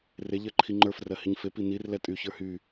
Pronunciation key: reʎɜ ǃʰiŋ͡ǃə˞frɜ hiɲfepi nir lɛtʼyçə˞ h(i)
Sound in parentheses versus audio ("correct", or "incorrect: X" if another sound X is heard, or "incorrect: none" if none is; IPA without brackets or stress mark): incorrect: y